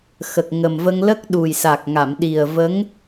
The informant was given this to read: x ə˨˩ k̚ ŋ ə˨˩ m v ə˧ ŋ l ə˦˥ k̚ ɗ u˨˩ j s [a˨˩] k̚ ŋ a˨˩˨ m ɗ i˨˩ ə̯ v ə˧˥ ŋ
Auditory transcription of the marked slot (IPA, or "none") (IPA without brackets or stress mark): a˨˩